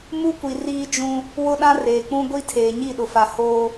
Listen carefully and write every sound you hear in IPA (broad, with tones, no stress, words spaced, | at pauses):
mu˦kʷi˨ riː˦d͡ʒũ˦ | wʊ˦ɗã˦reː˨ k͡pũ˦ɡʷi˦ tʰeː˨ɲi˦˨ɗʊ˨fa˨ hoː˦